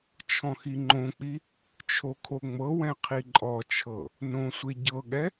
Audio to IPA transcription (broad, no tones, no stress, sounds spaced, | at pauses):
t͡ʃʰ ɔ̃ x i ŋ͡ǃ õ k͡p i | t͡ʃʰ o kʰ o ŋ͡m ɤ w ɛ̃ qʰ i ǃʼ ɔ t͡ʃʰ ɤ | n õ sʷ e ɟ ɤ ɠ ɛ